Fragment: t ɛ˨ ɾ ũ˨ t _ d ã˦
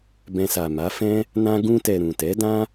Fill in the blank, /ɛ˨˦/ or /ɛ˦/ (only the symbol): ɛ˨˦